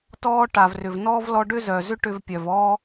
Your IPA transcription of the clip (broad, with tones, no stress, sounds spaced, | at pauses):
t ɔː˧ ʈ a˩ v r ʏ˩ v n ɔː˥ v l ɔ˧ ɖ ʏ˥ z œː˩ z ʏ˥ ʈ ʏ˧ v pʲ œ˩ v ɔː˥